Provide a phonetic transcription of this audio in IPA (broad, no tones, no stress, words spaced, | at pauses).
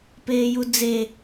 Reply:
peːjud͡ze